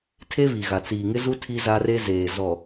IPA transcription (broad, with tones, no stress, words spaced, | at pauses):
tʰe˦βi˨ɣa˨ t͡siː˨ŋɪ˦zu˦ tʰi˦za˦re˦ zeː˨zɔ˨